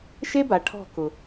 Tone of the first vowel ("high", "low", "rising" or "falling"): high